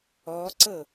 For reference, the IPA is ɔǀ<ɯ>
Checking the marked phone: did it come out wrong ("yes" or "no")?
yes